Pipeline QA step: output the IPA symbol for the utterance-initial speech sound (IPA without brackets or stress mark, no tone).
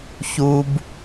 ç